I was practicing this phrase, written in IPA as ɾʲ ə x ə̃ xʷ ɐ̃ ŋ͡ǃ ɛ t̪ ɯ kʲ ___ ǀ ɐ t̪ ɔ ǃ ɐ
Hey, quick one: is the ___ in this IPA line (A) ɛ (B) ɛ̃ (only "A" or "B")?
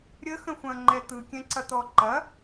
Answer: B